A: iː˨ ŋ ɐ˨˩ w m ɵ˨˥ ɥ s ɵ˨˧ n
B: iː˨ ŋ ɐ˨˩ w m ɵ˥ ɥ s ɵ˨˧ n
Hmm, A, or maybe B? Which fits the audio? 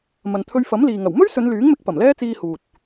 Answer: B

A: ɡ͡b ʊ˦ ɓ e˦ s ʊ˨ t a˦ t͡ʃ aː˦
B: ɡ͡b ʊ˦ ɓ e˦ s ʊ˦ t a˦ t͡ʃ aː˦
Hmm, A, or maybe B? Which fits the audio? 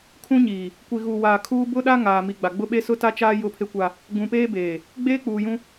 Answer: B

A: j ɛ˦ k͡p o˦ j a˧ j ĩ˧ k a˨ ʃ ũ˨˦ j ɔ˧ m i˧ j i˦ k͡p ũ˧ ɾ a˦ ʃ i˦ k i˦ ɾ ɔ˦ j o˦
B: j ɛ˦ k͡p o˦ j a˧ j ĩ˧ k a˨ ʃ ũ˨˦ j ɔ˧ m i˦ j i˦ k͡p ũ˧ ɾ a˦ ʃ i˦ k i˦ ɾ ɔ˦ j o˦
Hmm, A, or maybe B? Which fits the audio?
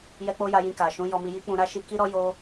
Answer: A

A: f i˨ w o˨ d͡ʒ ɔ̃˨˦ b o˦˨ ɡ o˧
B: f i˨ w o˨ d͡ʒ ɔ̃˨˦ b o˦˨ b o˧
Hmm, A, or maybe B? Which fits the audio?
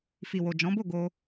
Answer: A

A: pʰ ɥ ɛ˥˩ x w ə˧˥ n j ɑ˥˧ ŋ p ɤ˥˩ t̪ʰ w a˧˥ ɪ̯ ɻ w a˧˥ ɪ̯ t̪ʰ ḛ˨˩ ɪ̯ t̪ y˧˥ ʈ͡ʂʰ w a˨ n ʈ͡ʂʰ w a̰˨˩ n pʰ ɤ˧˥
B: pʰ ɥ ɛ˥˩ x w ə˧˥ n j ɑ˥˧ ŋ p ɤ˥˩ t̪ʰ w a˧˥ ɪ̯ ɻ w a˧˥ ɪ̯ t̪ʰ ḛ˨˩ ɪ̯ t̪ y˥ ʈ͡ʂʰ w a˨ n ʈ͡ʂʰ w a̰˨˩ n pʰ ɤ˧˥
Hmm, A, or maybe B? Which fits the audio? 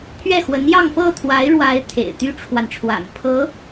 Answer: B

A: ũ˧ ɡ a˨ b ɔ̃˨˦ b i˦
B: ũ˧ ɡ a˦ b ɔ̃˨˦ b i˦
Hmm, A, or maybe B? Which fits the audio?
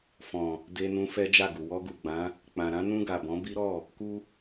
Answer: A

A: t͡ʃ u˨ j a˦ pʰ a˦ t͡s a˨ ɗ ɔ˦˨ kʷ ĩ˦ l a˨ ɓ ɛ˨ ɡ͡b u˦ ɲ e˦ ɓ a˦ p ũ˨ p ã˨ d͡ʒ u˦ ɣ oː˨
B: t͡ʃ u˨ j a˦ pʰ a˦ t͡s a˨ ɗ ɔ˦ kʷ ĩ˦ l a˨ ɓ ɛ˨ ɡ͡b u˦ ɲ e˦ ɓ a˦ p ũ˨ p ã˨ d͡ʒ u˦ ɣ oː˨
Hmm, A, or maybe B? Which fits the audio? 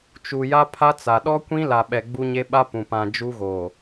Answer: B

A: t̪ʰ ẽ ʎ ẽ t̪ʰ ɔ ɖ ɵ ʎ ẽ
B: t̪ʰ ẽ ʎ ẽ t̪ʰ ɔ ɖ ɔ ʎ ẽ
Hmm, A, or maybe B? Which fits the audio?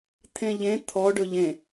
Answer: A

